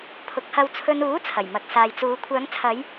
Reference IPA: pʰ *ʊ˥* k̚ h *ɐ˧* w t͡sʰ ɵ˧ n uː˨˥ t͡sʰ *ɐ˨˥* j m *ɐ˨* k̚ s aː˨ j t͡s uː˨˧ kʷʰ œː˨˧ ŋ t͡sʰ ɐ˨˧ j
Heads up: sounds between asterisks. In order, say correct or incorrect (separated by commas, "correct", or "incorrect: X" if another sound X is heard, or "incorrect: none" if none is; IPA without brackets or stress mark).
incorrect: ʊ˨˥, correct, incorrect: ɐ˨˩, correct